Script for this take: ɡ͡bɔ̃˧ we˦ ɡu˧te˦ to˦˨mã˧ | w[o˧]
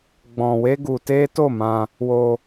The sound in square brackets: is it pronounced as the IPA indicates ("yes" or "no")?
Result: yes